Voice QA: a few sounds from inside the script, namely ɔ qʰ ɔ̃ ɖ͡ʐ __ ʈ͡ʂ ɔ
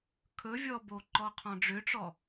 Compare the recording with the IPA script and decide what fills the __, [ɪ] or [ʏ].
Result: ʏ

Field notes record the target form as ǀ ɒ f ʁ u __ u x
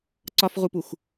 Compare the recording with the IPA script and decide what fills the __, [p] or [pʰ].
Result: p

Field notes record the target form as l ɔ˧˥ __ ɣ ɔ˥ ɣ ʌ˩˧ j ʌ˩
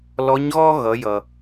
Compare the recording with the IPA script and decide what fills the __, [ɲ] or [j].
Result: ɲ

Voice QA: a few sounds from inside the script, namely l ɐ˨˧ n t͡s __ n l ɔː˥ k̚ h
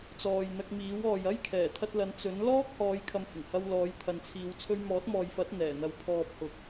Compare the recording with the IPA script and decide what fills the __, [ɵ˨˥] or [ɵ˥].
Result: ɵ˨˥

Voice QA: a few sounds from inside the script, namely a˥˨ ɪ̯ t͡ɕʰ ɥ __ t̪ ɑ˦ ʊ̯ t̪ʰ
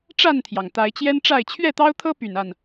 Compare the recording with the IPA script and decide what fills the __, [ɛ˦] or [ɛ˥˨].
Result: ɛ˥˨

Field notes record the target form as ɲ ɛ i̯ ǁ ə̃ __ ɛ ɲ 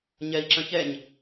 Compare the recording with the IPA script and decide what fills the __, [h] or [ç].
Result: ç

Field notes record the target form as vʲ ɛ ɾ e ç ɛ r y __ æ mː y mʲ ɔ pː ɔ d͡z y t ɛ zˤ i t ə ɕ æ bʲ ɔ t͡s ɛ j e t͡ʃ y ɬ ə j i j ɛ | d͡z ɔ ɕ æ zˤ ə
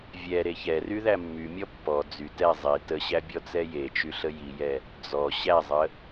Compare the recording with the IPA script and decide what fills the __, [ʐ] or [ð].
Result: ð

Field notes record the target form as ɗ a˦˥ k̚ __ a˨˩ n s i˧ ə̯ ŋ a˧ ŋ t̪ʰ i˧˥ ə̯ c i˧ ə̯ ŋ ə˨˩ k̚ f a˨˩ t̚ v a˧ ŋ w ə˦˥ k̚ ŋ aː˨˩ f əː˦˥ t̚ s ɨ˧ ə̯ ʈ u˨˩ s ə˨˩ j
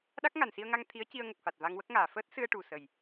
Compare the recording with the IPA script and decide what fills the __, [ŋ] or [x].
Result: ŋ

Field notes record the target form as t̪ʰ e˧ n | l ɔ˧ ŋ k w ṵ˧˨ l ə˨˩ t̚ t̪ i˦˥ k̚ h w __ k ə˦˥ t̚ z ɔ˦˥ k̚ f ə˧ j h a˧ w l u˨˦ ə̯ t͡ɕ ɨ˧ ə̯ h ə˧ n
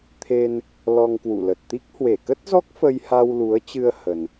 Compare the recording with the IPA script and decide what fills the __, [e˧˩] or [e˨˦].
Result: e˧˩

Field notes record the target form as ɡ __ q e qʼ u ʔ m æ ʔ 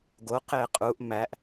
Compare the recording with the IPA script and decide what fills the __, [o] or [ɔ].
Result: o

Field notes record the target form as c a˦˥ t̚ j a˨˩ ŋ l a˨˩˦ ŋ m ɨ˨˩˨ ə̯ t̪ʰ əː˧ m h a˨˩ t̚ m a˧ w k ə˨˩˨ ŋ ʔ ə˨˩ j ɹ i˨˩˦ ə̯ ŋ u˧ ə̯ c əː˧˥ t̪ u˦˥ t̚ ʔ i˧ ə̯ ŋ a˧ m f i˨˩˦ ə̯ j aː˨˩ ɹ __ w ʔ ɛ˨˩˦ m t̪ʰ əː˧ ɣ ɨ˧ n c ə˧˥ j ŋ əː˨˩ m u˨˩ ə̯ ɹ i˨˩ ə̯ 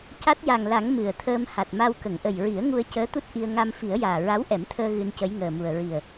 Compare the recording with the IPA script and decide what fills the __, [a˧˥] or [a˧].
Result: a˧˥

